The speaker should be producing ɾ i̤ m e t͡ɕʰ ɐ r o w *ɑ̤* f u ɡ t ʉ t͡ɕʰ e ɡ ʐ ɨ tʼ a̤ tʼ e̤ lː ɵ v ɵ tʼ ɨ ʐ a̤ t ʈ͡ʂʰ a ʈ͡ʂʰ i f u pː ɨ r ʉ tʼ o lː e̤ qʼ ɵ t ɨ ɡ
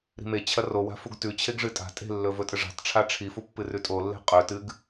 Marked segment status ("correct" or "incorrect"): incorrect